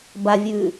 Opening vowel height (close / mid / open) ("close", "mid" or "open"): open